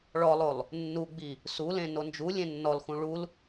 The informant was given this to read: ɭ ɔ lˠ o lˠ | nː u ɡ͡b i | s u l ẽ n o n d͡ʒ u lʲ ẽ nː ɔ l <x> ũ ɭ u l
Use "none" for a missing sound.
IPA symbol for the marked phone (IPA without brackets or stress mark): x